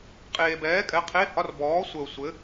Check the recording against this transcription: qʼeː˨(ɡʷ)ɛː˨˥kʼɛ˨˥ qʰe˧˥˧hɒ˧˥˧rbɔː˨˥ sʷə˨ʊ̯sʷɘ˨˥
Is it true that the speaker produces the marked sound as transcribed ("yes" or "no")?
no